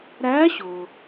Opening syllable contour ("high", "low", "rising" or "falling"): rising